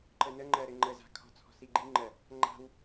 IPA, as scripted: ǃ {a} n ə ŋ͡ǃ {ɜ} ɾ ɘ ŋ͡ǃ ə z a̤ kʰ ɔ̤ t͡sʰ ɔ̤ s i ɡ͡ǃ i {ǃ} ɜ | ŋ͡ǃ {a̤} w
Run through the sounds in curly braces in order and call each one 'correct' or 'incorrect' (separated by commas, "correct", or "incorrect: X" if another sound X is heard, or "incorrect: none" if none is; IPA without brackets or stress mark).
incorrect: ə, correct, incorrect: ŋ͡ǃ, correct